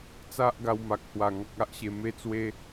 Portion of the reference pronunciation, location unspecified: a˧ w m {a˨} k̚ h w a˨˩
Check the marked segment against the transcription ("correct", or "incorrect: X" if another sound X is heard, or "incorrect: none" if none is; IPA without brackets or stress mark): correct